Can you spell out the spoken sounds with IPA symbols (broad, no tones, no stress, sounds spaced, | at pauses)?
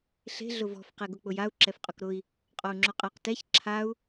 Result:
ɬ e̤ ɮ ʊ v ɔ̤ f q e ɡ ʊ k͡p ʊ j a u̯ ǁ ɛ f qʼ ʊ k ɾ ʊ i̯ | qʼ ɔ u̯ ŋ͡ǁ ʊ qʼ a q t ɛ ç ǁʰ a u̯